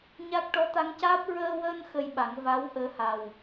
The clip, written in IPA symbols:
ɲ a˦˥ k̚ ʈ ɔ˧˥ t̪ a˧˥ ŋ c aː˦˥ p̚ ɹ əː˧ w əː˧ n x ə˧ j ɓ a˨˩˦ ŋ v a˧˥ w ʔ əː˧˥ h a˨˩ w

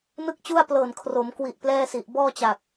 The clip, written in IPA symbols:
n ɯ˥˩ k̚ t͡ɕ u˥˩ a̯ p l ɤː˨˩ n kʰ r o˩˦ m k w i˨˩ ʔ p l ɛː˥˩ s i˨˩ ʔ b ɔː˥˩ t͡ɕ a˨˩ k̚

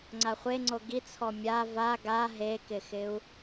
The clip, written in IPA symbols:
ŋ͡ǀ a χʷ e ŋ͡ǀ o ɡ i t͡sʰ ɔ mʲ a v a ɡ a ɦ e k ɪ x ɪ u̯

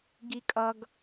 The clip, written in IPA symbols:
ɡ i kʼ ʌ ɡ

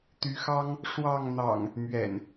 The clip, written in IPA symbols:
t̪ y˨˦ x ɑ˦ ŋ | ʂ w ɑ˥˨ ŋ n̪ ɑ̰˨˩ ŋ | m ɥ ɛ̰˨˩ n

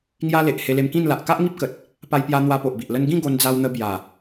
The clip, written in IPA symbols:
ŋ j a˦ l e˨ ʔ h e˧ l e˧ m k ĩ˥˧ n l a˨ ʔ k a˦ ʔ ŋ i˦ p̚ k ə˨ t̚ | p a˧ j p j a˧ n̪ w a˧ p o˨ ʔ b i˨ ʔ l ə˦ n ɡ ĩ˥˧ ɡ o˧ n d͡z a˧ w n̪ ə˧ b j a˨˩

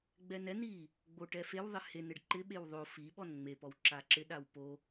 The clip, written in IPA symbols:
ɡ͡b ɛ n ɛ n i | ɡ͡b o ʈ ɛ f e w ðˤ ɪ h e n ɪ ɖ ǃ ɪ ɓ e w ðˤ o f i ɓ ɔ n ŋ͡m e p ɔ w ǁ a ǁ ɪ ɗ a w p o

